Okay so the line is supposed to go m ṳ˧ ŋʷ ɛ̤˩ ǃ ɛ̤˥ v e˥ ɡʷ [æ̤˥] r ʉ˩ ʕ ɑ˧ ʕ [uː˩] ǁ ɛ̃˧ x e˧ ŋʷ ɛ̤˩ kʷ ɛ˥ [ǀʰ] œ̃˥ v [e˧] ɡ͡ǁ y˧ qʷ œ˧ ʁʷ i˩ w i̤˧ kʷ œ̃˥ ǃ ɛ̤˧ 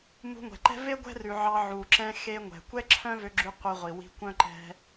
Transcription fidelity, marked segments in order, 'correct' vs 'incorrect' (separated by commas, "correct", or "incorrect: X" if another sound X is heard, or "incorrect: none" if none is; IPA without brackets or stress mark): incorrect: ɛ̤˥, incorrect: u˩, incorrect: ǁʰ, incorrect: ø˧